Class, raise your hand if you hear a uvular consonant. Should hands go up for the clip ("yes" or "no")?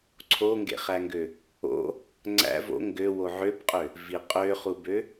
yes